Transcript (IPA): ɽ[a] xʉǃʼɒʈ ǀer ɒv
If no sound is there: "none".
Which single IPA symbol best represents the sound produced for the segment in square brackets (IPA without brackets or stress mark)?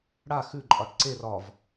a